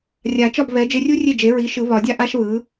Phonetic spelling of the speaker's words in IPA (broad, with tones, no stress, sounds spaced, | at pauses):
rʲ a˨˩˦ t͡ʃ ɒ˥˩ b β ɛ˩˥ d͡ʒ e˧ rʲ u˥ rʲ e˥˩ d͡ʒ e˩˥ ɹ i˩˥ ʃ ɯ˨˩˦ β ɒ˨˩˦ dʲ a˥ ʔ a˥ ʃ β ɯ˩˥